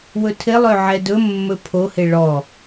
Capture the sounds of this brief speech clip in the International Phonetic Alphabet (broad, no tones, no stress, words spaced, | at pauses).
wɵtʰɪlˠø ʕɛdɵmːɵ pʰohɪ ɭɔ